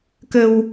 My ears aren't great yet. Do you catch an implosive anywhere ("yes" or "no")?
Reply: no